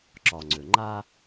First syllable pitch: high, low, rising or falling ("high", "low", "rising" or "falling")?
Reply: low